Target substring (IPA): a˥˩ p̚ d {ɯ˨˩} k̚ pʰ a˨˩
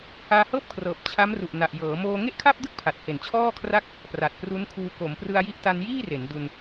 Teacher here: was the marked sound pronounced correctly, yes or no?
no